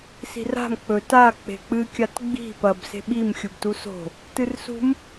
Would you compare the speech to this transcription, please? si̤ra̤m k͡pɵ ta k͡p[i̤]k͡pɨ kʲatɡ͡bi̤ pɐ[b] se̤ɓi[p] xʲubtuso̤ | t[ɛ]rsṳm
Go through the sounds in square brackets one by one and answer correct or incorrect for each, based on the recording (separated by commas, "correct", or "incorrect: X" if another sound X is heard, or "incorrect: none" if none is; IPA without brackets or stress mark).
incorrect: e̤, correct, incorrect: m, incorrect: ɨ